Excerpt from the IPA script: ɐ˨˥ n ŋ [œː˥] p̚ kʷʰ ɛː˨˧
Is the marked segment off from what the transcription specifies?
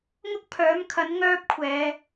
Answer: no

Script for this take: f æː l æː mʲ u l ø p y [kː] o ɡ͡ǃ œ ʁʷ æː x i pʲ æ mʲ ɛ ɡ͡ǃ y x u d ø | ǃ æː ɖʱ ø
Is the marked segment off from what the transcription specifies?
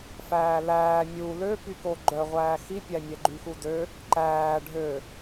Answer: yes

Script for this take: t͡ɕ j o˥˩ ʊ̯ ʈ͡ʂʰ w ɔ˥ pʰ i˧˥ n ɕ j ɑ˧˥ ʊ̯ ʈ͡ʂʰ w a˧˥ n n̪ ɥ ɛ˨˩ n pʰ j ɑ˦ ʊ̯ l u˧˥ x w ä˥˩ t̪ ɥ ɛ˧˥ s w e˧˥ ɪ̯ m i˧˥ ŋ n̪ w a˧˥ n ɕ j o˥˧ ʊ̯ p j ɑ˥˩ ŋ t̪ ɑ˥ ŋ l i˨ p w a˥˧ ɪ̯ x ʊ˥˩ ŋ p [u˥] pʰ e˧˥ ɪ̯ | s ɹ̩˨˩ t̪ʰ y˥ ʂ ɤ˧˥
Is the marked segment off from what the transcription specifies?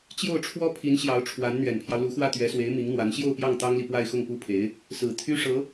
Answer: no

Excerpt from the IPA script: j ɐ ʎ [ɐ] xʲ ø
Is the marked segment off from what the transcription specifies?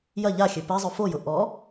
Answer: yes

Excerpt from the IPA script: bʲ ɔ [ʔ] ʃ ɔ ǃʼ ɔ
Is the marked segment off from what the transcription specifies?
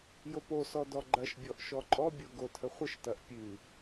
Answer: no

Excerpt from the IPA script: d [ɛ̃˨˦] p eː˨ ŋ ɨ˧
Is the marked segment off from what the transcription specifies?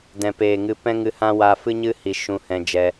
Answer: yes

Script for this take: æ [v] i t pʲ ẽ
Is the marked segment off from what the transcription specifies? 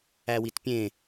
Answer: yes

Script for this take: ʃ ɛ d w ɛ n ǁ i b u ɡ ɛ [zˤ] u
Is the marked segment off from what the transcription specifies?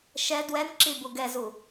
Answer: yes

